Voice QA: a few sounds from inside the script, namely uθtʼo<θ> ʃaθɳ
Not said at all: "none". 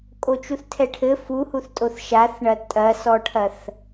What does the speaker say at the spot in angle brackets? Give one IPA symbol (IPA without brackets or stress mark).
θ